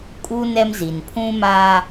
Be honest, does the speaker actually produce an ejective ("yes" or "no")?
yes